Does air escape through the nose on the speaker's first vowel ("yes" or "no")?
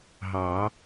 no